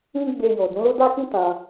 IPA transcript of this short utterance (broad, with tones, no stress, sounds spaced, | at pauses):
ĩ˦ ɡ͡b e˧ j o˨ d ũ˨˦ l o˦ d a˦ k ĩ˦ t ã˧